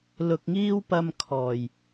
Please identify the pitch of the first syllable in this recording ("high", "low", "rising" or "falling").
low